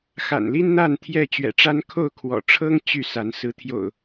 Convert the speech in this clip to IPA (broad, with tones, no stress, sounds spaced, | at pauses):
x a̰˨˩ n l i˦ n n̪ a˥˨ n t̪ʰ j ɛ˥˨ t͡ɕ ɥ ɛ̰˨˩ ʈ͡ʂ a˦ n kʰ o˥˨ ʊ̯ kʰ w ɔ̰˨˩ ʈ͡ʂʰ ɤ˦ ŋ t͡ɕ y˥˨ s a˨˦ n s ɹ̩˨˦ t̪ʰ j o̰˨˩ ʊ̯